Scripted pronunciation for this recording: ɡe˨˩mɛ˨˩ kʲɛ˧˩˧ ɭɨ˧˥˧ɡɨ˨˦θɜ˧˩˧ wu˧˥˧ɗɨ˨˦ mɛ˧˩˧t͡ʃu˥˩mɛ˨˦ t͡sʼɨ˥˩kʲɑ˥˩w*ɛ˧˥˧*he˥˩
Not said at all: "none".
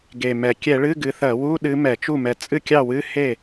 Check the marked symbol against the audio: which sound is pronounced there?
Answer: ɨ˧˥˧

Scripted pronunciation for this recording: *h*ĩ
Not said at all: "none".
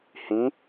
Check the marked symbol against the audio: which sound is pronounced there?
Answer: h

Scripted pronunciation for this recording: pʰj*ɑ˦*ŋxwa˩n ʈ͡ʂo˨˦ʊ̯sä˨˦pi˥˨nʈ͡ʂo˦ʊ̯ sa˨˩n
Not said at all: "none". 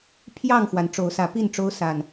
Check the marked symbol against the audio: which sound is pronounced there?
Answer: ɑ˥˨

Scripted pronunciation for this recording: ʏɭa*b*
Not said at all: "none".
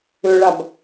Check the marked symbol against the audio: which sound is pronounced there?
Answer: b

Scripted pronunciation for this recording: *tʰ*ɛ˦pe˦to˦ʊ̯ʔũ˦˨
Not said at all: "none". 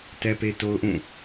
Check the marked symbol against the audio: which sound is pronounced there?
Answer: t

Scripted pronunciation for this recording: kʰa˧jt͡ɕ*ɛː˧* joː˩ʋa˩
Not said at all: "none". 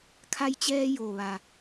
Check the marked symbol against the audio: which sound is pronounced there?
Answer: ɛː˧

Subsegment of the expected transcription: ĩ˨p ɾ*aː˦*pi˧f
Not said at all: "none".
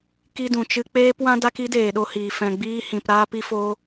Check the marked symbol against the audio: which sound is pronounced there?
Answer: aː˧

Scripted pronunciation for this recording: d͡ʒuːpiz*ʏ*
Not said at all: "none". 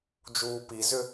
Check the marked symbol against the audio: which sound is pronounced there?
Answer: ʏ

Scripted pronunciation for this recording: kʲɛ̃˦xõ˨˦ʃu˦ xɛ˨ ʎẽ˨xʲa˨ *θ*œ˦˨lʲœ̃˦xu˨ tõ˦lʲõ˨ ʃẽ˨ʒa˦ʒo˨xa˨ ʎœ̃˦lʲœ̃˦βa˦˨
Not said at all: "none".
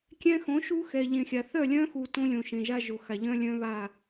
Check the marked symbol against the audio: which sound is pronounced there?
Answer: θ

